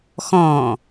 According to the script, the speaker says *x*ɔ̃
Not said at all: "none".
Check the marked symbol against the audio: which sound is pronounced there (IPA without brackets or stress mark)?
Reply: x